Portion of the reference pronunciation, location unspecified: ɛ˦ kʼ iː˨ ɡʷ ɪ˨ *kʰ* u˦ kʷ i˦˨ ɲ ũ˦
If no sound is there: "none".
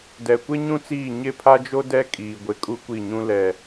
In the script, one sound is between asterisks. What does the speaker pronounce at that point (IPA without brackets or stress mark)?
kʼ